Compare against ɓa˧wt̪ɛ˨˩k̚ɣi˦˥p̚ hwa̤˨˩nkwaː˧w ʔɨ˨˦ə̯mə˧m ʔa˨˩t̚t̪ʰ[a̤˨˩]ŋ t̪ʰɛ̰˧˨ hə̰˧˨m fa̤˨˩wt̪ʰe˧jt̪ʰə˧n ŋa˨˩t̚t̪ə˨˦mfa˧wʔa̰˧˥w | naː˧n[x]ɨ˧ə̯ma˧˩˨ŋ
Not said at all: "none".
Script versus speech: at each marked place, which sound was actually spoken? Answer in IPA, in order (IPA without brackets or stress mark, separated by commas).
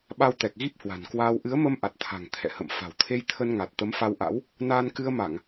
a̤˨˩, k